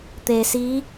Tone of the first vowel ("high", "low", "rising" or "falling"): low